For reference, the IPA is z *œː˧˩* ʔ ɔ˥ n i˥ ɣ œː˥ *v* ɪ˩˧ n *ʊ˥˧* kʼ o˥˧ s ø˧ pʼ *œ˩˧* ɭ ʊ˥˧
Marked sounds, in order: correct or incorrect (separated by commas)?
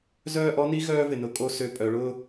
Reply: incorrect, correct, incorrect, correct